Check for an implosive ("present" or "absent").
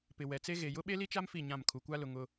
present